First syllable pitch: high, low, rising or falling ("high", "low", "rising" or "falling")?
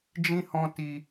high